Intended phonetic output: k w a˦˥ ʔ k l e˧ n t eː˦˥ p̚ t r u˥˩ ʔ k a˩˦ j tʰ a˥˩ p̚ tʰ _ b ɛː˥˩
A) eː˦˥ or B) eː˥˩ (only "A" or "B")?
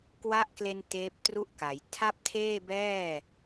B